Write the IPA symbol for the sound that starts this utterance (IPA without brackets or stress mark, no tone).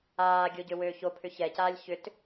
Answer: aː